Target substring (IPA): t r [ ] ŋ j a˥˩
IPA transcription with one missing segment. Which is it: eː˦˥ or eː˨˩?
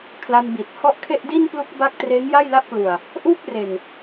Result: eː˦˥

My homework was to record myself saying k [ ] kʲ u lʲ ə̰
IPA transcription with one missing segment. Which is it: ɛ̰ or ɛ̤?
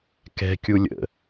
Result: ɛ̤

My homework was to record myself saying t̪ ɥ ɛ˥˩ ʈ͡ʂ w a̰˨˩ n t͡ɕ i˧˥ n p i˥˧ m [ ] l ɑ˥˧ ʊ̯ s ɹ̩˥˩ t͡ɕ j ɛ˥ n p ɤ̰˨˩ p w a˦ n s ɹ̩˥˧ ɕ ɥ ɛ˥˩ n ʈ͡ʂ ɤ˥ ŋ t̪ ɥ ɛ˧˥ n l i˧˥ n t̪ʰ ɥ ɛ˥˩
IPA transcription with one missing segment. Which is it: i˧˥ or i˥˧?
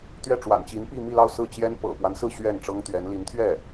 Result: i˥˧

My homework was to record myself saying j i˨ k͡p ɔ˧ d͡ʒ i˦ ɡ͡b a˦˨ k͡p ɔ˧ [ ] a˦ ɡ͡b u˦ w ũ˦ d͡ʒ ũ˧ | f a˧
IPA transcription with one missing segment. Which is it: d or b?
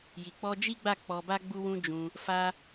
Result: b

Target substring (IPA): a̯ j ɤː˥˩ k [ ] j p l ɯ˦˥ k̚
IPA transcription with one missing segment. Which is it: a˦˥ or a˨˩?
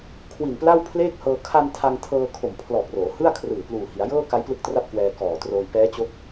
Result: a˦˥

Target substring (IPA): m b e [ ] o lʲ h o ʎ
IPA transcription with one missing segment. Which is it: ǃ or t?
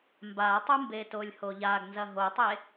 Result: t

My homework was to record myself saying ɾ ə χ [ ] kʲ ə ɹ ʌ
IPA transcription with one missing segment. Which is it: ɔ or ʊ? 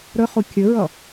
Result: ʊ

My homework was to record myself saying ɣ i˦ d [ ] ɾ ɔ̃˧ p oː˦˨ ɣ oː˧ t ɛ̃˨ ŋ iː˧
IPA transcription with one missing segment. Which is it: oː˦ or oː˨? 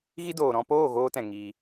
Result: oː˨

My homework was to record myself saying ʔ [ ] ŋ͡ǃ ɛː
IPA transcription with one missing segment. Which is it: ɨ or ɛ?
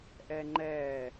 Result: ɛ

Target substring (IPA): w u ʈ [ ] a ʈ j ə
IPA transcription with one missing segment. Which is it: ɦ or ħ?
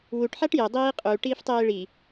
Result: ħ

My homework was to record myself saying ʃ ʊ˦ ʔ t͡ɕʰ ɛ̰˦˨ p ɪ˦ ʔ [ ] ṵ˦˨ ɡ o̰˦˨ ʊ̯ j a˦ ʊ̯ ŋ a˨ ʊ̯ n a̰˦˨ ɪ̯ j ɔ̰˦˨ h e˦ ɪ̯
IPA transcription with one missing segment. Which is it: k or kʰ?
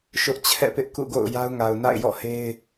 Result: k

